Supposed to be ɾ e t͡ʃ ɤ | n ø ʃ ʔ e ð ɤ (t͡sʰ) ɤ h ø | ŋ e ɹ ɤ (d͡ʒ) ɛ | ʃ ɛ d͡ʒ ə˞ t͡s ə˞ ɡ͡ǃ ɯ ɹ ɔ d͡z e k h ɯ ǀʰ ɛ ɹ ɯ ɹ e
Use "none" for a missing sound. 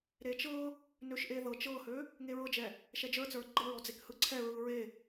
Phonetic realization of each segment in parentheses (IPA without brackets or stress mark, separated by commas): t͡ʃ, d͡ʒ